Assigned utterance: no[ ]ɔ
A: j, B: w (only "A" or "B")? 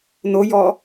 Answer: A